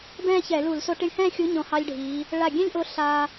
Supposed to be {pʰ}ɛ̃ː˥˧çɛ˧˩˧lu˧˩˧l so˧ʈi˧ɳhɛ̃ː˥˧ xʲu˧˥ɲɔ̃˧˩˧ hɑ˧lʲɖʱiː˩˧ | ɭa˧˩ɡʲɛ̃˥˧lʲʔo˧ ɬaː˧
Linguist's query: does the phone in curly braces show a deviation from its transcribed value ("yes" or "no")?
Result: yes